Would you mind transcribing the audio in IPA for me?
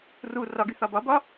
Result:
ru rɒɡy θɒbɒbɒ

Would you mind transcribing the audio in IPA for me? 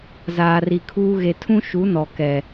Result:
zaː˨ri˨kʰuː˦ ɣe˨tʰũ˦ʃu˨˦ nɔ˨kɛ˨

